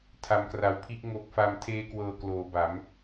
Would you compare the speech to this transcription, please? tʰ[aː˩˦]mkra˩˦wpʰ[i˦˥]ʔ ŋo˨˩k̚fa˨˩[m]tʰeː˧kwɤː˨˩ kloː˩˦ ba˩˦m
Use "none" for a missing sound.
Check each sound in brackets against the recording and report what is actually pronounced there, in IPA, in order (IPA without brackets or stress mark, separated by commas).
a˩˦, i˦˥, m